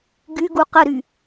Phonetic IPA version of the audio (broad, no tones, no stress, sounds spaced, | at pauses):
ɡ y ɡ u q ə ɾ y